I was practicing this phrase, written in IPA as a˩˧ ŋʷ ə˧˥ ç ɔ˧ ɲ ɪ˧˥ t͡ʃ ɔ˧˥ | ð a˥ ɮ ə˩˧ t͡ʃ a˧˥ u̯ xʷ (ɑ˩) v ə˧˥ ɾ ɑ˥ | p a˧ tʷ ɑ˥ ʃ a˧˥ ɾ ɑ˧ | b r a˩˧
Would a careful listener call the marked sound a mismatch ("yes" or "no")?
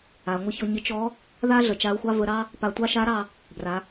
yes